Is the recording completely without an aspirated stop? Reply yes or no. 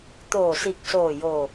yes